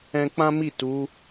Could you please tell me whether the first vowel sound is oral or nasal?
nasal